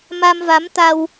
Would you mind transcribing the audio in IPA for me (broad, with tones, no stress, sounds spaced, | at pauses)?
m a˧ m v a˨˦ m t̪ a˧ w